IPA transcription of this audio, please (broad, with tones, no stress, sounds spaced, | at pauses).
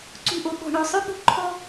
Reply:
ǀ ṳ˦˨ ʔ o˧ ɓ ɔ̤˨ ɳ oː˨ sˤ ø˦ ɓ ṳ˧ ǃʰ ɔ˧